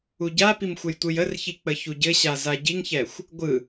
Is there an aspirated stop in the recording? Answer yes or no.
no